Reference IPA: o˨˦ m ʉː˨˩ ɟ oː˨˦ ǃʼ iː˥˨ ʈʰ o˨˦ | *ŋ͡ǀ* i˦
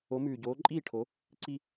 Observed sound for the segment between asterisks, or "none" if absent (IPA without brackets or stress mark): ǀ